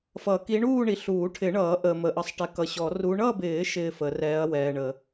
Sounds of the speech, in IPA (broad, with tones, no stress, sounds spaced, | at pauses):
f ʌ˨˩˦ k i˧˥ ɳ uː˥˧ ɳ i˨ ɬ uː˨˩˦ ʈʰ ɪ˨˩˦ ɳ ʌː˨˩˦ ʔ əː˨ m ə˨˩˦ ʔ ʌ˧˥ sˤ ʈ ɛ˧˥ k ʌ˨ ɕ ɔ˨˩˦ r u˧˥ ɳ ʌ˥˧ b ɪː˨˩˦ ʃ ɪː˥˧ f ə˨˩˦ r ɛː˧˥ ɐ̯ w ɛː˨ ɳ ə˨˩˦